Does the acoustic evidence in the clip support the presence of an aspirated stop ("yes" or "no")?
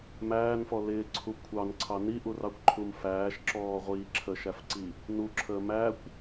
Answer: yes